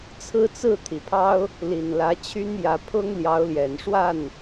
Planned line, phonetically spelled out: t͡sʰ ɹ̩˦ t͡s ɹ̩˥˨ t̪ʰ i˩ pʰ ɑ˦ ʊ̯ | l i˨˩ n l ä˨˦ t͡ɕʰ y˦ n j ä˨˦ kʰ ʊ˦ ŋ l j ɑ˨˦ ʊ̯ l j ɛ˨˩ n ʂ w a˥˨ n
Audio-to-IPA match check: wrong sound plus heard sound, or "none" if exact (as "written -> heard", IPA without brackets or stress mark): kʰ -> pʰ